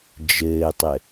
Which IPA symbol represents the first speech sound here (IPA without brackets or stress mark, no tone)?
d͡ʒ